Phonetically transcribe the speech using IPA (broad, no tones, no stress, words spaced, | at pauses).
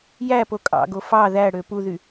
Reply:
jæpo kʼɑ̰ɡo fɑ ðæɽø puðy